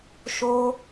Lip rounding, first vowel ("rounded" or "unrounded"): rounded